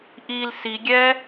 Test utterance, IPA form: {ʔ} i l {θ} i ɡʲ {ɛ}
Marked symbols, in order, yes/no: yes, no, yes

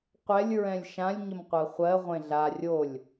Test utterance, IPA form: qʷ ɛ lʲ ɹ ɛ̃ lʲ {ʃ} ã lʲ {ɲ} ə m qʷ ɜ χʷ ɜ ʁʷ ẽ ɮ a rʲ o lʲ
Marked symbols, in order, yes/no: yes, yes

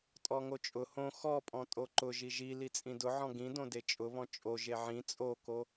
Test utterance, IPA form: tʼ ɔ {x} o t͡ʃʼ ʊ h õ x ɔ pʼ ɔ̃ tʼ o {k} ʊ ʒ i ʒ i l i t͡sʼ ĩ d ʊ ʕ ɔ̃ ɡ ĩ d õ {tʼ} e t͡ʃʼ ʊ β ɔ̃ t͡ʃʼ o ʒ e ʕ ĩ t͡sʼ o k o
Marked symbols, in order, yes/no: no, no, no

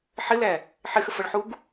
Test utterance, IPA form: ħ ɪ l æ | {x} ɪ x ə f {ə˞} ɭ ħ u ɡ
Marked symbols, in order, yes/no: no, no

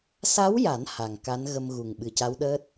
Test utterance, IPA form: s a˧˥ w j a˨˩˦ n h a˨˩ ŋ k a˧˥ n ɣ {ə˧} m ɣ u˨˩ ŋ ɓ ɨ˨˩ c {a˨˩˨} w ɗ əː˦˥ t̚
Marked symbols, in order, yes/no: yes, no

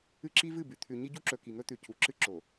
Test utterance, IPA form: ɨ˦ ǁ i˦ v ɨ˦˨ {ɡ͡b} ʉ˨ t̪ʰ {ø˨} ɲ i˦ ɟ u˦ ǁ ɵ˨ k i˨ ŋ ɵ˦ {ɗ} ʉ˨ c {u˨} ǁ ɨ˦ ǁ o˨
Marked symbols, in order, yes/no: no, no, no, yes

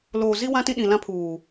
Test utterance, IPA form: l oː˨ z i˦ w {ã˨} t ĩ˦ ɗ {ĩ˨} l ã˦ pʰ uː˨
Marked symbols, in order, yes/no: no, yes

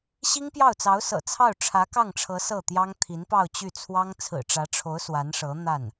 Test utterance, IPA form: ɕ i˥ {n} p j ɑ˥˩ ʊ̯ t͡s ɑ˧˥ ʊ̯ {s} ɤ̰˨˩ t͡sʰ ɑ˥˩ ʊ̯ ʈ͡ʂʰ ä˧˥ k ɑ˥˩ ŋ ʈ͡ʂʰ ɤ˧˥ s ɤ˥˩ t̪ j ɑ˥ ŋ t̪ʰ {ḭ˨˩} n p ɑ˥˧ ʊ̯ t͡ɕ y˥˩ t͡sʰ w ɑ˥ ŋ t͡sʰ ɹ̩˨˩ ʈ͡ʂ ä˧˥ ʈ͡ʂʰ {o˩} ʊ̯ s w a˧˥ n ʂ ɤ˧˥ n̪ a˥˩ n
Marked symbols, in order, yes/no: no, yes, no, no

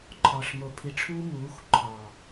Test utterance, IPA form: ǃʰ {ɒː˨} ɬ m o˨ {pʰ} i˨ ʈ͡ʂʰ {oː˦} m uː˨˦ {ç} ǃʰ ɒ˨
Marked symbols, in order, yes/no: yes, yes, no, no

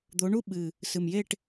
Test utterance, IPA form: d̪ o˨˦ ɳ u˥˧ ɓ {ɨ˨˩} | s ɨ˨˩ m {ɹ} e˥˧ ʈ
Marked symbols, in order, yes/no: yes, no

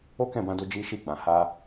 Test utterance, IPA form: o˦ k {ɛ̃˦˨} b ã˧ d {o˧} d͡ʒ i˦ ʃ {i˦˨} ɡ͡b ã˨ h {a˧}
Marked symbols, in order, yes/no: yes, yes, yes, yes

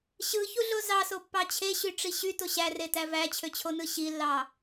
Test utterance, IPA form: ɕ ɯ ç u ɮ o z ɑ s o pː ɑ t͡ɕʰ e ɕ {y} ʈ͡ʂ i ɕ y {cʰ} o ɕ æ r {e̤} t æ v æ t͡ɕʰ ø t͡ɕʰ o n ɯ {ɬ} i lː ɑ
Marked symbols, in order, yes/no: yes, no, no, no

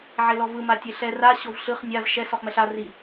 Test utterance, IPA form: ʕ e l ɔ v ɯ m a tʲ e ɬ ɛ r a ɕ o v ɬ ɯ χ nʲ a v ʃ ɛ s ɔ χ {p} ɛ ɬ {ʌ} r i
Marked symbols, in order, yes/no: no, no

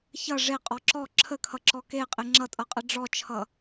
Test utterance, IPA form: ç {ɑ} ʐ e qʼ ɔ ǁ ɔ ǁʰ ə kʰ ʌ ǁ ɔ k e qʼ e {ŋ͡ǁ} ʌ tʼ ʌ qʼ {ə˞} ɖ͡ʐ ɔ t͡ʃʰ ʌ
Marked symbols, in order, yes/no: no, yes, no

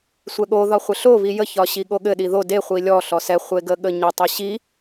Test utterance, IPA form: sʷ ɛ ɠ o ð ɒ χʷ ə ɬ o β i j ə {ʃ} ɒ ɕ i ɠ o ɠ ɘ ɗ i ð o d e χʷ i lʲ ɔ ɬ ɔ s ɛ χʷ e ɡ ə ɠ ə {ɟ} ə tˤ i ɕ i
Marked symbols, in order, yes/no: no, no

